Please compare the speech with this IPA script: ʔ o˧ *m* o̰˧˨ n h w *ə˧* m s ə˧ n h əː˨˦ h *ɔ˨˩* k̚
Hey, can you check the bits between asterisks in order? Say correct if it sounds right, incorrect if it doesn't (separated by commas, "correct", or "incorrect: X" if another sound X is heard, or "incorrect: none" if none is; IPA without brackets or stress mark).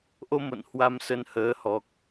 correct, incorrect: a˧, correct